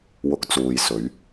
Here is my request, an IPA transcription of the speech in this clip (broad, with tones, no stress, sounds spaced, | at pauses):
w ʊ˨˥ k̚ t͡s uː˨ j s ɵ˨˧ ɥ